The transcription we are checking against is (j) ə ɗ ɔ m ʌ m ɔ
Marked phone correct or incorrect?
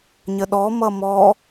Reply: incorrect